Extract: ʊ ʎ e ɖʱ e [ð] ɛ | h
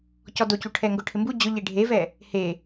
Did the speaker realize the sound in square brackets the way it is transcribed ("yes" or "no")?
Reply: no